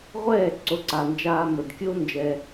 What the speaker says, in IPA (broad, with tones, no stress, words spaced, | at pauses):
ʁʷɛː˦˨ ǀo˨˦ǀa˨nd͡ʒaː˧ mə˨dkʲo˦ nd͡ʒɛ˧